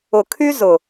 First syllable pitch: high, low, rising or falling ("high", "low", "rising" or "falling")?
low